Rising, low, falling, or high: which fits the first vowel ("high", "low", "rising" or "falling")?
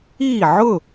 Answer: falling